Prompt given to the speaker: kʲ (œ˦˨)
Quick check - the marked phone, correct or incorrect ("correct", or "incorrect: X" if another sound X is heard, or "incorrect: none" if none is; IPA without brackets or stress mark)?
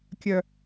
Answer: incorrect: œ˨